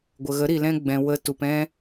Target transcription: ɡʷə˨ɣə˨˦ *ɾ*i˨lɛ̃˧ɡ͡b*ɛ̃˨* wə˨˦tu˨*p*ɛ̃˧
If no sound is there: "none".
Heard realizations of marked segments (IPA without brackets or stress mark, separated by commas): ɾ, ɛ̃˨, p